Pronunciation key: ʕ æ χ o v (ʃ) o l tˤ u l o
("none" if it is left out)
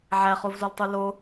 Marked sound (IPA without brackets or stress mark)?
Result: z